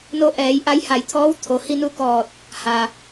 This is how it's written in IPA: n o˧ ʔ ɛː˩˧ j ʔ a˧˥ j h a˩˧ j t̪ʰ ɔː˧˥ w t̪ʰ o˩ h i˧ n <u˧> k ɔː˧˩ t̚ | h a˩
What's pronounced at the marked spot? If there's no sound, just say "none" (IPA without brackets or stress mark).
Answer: u˧